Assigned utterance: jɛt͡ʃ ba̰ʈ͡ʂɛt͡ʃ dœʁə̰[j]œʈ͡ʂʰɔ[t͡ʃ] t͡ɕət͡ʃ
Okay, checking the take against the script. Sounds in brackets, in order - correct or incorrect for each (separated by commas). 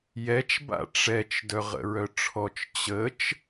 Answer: incorrect, correct